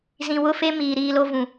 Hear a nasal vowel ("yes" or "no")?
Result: yes